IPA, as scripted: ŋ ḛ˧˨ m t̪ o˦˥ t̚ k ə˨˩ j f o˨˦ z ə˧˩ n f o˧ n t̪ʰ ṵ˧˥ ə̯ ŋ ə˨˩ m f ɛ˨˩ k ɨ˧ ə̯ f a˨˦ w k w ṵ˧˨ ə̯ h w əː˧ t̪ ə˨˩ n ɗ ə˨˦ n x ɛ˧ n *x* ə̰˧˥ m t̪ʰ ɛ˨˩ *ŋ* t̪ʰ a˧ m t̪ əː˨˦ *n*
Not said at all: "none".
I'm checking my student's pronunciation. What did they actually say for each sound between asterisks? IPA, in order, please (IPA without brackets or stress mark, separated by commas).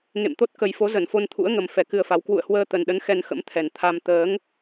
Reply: x, n, ŋ